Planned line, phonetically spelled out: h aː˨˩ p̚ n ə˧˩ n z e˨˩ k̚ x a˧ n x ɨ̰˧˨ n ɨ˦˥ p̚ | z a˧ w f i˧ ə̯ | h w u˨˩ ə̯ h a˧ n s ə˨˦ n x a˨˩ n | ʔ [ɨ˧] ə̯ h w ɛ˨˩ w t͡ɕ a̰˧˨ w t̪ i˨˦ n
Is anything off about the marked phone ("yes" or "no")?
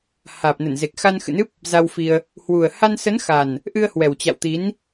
no